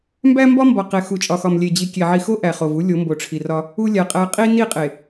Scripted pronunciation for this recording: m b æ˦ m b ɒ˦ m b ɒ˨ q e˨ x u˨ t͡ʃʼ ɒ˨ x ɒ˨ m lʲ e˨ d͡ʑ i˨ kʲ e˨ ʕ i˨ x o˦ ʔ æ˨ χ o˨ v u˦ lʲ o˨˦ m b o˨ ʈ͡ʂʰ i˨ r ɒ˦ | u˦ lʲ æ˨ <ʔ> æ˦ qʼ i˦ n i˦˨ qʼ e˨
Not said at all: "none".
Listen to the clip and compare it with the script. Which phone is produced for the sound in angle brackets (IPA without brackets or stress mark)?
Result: qʼ